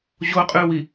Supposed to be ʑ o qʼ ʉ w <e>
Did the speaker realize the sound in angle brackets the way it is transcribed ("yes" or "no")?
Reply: no